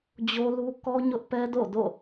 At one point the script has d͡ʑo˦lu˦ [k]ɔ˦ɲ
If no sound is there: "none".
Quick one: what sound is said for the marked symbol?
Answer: k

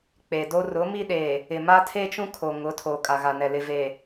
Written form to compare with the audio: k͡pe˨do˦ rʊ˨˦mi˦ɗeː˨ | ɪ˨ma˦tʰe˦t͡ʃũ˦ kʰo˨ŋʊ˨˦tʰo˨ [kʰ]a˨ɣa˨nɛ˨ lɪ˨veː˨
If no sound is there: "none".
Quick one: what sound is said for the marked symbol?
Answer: kʼ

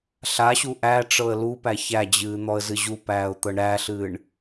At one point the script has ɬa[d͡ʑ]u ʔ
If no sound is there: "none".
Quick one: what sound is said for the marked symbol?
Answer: ɕ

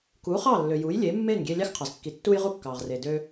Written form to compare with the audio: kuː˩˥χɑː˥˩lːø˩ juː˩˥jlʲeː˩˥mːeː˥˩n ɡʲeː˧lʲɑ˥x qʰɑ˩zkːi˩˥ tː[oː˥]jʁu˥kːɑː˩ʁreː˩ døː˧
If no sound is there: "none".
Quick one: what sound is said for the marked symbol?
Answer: uː˥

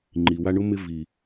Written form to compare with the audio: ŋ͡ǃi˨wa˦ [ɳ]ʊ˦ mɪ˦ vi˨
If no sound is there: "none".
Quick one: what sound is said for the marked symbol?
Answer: ɳ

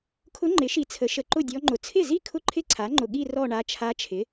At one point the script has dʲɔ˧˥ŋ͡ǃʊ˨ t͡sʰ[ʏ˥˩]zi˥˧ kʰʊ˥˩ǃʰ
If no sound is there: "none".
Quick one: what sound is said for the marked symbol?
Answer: ɪ˥˩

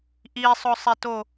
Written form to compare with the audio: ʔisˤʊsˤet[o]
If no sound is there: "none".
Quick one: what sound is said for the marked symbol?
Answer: o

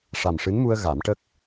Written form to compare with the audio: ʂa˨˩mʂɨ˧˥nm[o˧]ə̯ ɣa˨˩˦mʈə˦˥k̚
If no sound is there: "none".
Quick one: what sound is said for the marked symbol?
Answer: u˧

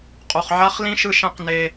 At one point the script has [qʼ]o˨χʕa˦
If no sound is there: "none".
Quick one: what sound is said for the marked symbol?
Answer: qʼ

